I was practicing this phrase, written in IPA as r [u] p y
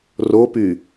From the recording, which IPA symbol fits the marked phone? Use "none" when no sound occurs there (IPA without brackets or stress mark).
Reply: o